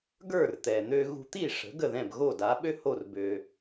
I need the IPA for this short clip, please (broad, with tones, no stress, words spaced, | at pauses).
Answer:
ɡə˞˥˩rt̪ɛ˩n̪ø˧ ɣṳ˧t̪i˥˩ʂə̤˩˥ ɡə˥˩ðɛ̃˥˩bɣo˥˩ da˩˥ɓø˥ho˥˩r bø˧